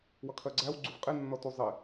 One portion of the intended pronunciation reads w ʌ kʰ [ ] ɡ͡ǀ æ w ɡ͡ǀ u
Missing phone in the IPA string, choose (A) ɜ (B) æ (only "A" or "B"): A